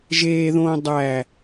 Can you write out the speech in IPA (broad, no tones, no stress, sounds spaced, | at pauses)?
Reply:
ʒ eː ð õː dˤ æ